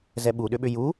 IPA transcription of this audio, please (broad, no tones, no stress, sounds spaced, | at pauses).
z ɛ ɓ u ɗ ʏ ɓ ʏ j u